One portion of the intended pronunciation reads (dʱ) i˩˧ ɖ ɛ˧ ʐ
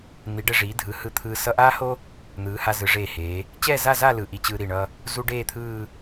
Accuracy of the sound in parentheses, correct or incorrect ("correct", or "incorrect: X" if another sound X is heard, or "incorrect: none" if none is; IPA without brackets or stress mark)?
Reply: incorrect: n̪